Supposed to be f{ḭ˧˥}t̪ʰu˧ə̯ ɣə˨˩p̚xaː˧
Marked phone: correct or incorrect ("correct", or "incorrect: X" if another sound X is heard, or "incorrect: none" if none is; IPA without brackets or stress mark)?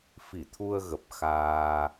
incorrect: i˧˩